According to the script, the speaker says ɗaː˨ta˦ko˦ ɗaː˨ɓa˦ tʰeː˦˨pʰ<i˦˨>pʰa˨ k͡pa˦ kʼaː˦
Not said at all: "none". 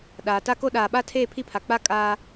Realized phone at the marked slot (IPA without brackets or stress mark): i˦˨